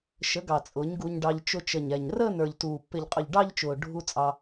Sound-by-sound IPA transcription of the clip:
ʃ ə˩˥ ɡ ɑ˨˩ t͡sʼ ʊː˩˥ ɲ ɡ u˧ ɲ ɖ ɑ˧ ʎ t͡ʃ ʊ˧ t͡ʃ ə˨˩ ɲ ɛ˨˩ ɲ r əː˥˧ n ə˞˨˩ ʎ t uː˨˩ pː ɪ˨˩ ʎ qʼ ʊ˨˩ ʎ ɖ ɑ˥˧ ʎ t͡ʃ ʊː˨˩ ɖʱ u˧ t͡sʼ ɑ˧

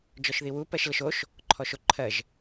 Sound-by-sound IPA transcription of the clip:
d͡ʒ ɔ ʃ ð i w u p ɜ ʃ l ə ʃ o ʃ | ǃʰ ɔ ʃ o ǃʰ ɜ ʒ

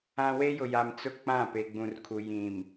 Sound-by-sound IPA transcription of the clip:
ã˦ w e˦ j ʊ˨ j a˨ m t͡s ʊ˦ k͡p ã˦˨ p e˨ ɡ͡b ũ˨ r kʰ u˨ j ĩ˨ m

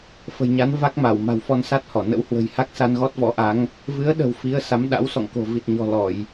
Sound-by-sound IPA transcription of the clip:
f ə̤˨˩ j ɲ a˨˦ n v a˦˥ k̚ m a˧˩ w m a̤˨˩ w f ɔ˧ n s a˦˥ t̚ h ɔ˧˩ n ə̰˧˥ w h w ə̤˨˩ j h a˦˥ k̚ s a˧ n ɣ ɔ˦˥ t̚ v ɔ̰˧˥ ʔ a˨˦ ŋ | v ɨ˨˦ ə̯ ɗ ə̤˨˩ w f i˨˦ ə̯ s a˨˦ m ɗ a̰˧˥ w s ɔ̰˧˨ ŋ k o̤˨˩ v i˨˩ t̚ ɲ ɔ̤˨˩ l ɔ˧˩˨ j

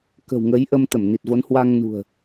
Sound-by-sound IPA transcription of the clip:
k ə̤˨˩ w ŋ ə˨˦ j ʔ ə˧ m t̪ ə˧˩ m n i˨˩ t̚ v o˨˦ n h w a˧ ŋ n ṳ˨˩ ə̯

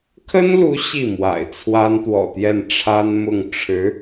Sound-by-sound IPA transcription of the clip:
kʰ ə˥ n l u˧˥ ɕ i˥˩ m w a̰˨˩ ɪ̯ t͡sʰ w a˥ n t̪ w ɔ̰˨˩ t̪ j ɛ˥˩ n ʈ͡ʂʰ a˥ n m ʊ˥˩ ŋ ʈ͡ʂʰ ɻ̩˧˥

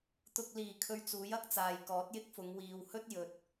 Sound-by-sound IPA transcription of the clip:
t̪ ʊ˨ k̚ l iː˨˩ kʰ ɵ˧ ɥ t͡s uː˨˥ j ɐ˥ k̚ t͡s aː˨ j k ɔː˨˥ t̚ j ɪ˥ k̚ f ʊ˨˧ ŋ w iː˨ w h ɵ˥ t̚ j ɵ˨ t̚

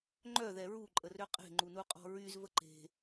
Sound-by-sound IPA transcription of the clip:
ŋ͡ǃ œ ð ɛ ɹ u ǃʼ ə r ø qʼ e̤ ŋ͡ǃ u n u qʼ ɔ̤ ɹ y z v ə ǃ e̤

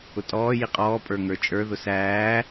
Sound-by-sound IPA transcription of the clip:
ʊ tʼ ɔː j i qʼ ɔː pʼ ə˞ ŋ ə˞ t͡ʃʼ ə˞ ð ʊ s æː

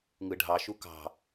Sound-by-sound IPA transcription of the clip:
ŋ ɯ ɖʱ ɑ ʃ u k ɑ̤

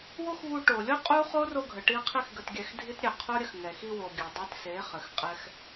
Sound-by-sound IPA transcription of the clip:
w o˦ x v u˧ ʈ o˨ lʲ o˦ qʼ u˦ χ o˦ r o˧ ɡʱ ə˨ ʈ i˧ qʰ i˧ x ɡ ə˧ t ɡʲ ɛ˧ x dʱ i˦ t ɾʲ ɛ˨ qʰ o˦ ɾʲ ə˧ x ŋ ɛ˨ x i˧ w o˨ ɡʲ ɘ˨ dˤ i˧ t s e˨˦ χ ɘ˨˦ x qʼ ɛ˦ x

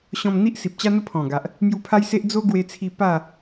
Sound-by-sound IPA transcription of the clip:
ɕ ɔ̃˧ m n̪ i˦ ʔ s i˨ p̚ t͡ɕ a˦ n̪ ə˦ pʰ ɔ̃˨˩ ɡ a˨ ʔ | m j u˧ pʰ a˦ j s e˦ ʔ d͡z o˦ ɡ w e˧ t͡sʰ i˧ p a˥˧

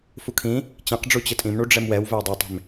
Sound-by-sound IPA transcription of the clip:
f u kʰ ĩ | t͡ɕ ẽ q ɖ͡ʐ u t͡ɕ ɘ tʼ ĩ m ɳ u ɖ͡ʐ ɛ m w ɛ w v ɛ w dˤ o tˤ e̤ m

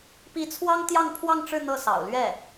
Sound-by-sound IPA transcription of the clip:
p i˧˥ t͡sʰ w ɑ˥ ŋ t̪ j ɑ˥˧ ŋ pʰ w ɑ˥˧ ŋ ʈ͡ʂ ɻ̩˥˧ n̪ ɤ˥˩ s ɑ̰˨˩ ʊ̯ l ɥ ɛ˥˩

